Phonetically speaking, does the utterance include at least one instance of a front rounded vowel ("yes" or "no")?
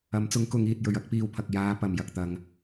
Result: no